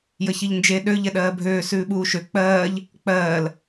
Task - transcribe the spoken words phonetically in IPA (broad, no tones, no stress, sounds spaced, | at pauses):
j ə ç i ʎ n d͡ʒ e ɗ ø ʎ ɛ ɗ ɜː bʱ øː s ʉː ɓ uː ʃ ø k͡p ɜː ʎ | k͡p ɜː l